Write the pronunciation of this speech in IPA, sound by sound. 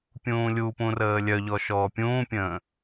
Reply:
pʲũːlʲupũ rəːlʲœʎɔ ʃɔːpʲũːpʲə̃ː

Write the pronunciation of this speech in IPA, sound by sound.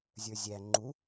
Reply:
zʲə˞zʲæ ŋ͡ǃu

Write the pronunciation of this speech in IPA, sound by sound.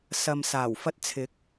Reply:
sɐ˨msaː˨˩w fɐ˧t̚t͡sʰɪ˨˥k̚

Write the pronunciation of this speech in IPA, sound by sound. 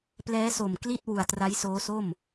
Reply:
plɛː˦˥so˨˩mkli˥˩t̚ wu˨˩a̯tra˦˥jsoː˦˥so˥˩m

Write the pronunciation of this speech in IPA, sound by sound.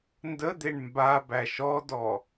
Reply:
ndəd̪eɳ mba bæʃɔdɔ

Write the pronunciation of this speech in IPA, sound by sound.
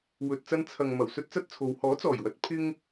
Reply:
wɵ˨t̚t͡sɐ˧n t͡sʰɐ˨ŋmɐ˨˩w sɵ˥t̚t͡sɐ˥t̚t͡sʰo˨˧w hɔː˨˥t͡sɔː˨˩jwɐ˨˥t̚ pʰɪ˥ŋ

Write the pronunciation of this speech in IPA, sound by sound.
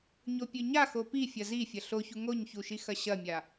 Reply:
ɲopʲʉɲa xopi fʲɐzi fʲɐɬoçu ŋoɲçuʃixɐ ɕɐmʲa

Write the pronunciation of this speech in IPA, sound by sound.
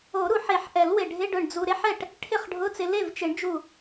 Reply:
o˨˩˦ɾu˨˩˦ħe˨˩˦ħʔɛ˨˩˦l wɪ˧˩ ɖʱɪ˧˥˧ɖʊ˧˩ɳ d͡zu˧ ɾe˦˥ħɛ˥˩ʈ | ʈʰɪ˥˩χɖʱʊ˧˥˧t͡sɪ˧ le˥˩vt͡ʃɪ˨˩˦ɳ d͡ʒu˧˩

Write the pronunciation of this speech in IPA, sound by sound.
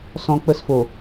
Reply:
sɔ̃˦k͡pə˦sfo˨

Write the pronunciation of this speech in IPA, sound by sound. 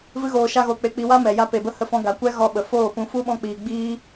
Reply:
vɨ˦ɣoː˧ ʃa˦ɣo˧k͡pe˧ k͡pi˧wa˦mɛ˨ ja˦pe˧bə˦ hə˧fɔ̃˧ ɡa˨kʷɛ˦ ɣɔ˧ɓə˨ foː˦˨pũ˧ fu˦ɓɔ̃˧k͡piː˨ ɡ͡biː˦

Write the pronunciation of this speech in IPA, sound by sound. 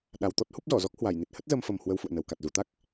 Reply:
ɗa˨˩wt̪ɔ˦˥t̚hu˦˥p̚zɔ˧˩ zɔ˦˥k̚hwa˧˩jni˨˩t̚ hə˦˥t̚zə˧mfə˨˩m hwə˧wfṵ˧˨ə̯nə˨˩wka˨˩t̚ zu˧˩t̪a˦˥k̚

